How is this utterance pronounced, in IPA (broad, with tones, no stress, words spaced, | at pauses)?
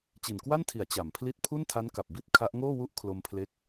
t͡ɕi˨˩nkwa˥˩ntʰi˩˦a̯ t͡ɕa˩˦mpʰli˥˩t̚ pʰu˥˩ntʰa˦˥nka˨˩p̚ bi˦˥t̚ kʰa˦˥ʔ ŋoː˥˩ wu˦˥ʔ kʰlo˧mpʰle˦˥k̚